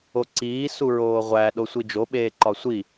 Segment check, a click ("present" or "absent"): present